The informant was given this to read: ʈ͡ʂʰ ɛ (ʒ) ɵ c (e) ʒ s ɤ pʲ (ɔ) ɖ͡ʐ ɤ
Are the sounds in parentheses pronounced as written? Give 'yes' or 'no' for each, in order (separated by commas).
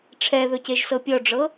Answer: no, yes, yes